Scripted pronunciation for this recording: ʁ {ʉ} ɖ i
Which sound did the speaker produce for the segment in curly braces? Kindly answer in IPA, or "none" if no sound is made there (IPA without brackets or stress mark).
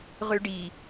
ʉ